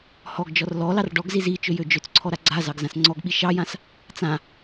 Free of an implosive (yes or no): no